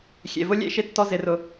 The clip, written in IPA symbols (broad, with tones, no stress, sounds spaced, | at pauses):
xʲ ḛ˨ v ʊ˦ lʲ ḛ˦ ʃ ɪ˧ tː ɔ˧ z ɪ˨ r ʊ˨